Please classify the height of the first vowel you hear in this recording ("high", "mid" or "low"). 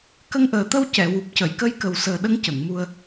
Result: mid